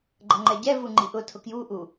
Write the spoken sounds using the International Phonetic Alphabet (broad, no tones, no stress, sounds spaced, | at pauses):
ɡ͡ǃ ʌ ŋ͡ǃ ɛ ɟ ɛ v u ŋ͡ǃ i ʔ ʊ tʰ ʊ k j u ʔ u